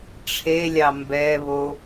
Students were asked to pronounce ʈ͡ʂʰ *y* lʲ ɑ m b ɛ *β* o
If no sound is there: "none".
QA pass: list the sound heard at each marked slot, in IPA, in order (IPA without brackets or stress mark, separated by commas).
e, β